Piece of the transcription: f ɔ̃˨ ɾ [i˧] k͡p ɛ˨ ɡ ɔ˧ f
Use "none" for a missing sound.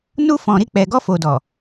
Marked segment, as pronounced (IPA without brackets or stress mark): i˧